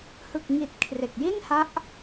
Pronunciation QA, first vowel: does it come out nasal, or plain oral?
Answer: oral